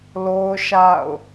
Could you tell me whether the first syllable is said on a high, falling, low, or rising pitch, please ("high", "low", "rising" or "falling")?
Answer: high